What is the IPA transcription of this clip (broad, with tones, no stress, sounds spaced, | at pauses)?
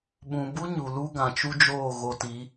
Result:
ɓ ũ˨ b u˦ ɲ u˨ l u˦ ɡ ã˨ t͡ʃ u˦ d͡ʒ oː˦˨ ɣ o˧ t i˨˦